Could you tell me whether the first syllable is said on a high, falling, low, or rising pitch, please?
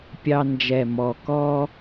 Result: high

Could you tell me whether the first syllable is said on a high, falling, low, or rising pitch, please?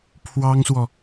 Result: high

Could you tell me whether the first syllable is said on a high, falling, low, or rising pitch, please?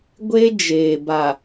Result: high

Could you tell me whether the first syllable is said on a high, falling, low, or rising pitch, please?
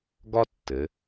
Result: high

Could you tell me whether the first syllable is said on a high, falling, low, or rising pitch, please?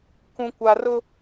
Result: low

